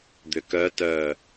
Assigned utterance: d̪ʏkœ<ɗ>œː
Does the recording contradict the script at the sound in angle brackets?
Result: yes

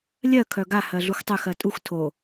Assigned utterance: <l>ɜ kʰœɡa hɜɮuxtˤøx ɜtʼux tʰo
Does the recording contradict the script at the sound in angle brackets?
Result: yes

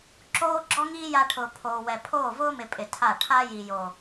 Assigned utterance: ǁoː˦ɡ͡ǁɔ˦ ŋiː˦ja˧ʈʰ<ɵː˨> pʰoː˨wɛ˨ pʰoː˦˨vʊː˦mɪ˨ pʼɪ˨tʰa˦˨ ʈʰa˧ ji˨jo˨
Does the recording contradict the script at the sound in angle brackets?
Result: yes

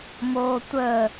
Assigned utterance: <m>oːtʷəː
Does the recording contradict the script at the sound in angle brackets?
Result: no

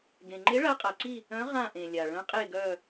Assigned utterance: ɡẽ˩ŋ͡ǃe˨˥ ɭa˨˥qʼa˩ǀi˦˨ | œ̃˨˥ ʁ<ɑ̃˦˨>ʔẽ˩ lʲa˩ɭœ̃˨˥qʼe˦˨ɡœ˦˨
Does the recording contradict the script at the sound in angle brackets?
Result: yes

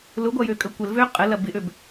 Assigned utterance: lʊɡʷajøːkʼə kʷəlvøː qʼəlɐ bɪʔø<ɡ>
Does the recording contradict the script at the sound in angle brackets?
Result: yes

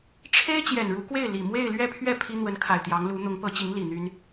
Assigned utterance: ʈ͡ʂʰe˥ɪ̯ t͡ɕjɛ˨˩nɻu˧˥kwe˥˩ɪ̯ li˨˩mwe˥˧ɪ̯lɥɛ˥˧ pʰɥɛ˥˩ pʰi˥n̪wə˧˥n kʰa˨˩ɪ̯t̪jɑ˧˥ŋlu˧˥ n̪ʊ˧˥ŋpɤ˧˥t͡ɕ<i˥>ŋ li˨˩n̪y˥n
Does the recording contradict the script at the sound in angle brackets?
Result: yes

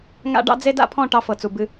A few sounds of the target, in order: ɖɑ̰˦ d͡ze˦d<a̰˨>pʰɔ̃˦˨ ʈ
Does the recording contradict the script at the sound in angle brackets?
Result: yes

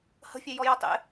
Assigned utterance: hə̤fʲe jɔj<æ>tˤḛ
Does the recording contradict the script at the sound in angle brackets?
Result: yes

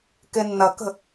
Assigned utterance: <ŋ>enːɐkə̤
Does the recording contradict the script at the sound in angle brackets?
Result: yes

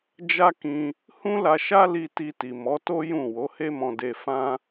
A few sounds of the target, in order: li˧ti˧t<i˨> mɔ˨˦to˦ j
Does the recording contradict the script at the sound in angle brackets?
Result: no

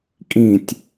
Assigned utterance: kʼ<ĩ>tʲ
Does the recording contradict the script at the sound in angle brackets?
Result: no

